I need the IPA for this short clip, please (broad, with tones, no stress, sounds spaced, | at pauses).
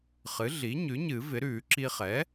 χ ɨ˩˥ ɮ i˩˥ ɲ ʉ˩˥ ɲ ɨ˨˩˦ v ɪ˩˥ ɾ ʉː˨˩˦ ǁ i˧ χ ɛ˩˥